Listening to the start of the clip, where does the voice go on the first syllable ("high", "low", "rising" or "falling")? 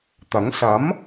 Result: rising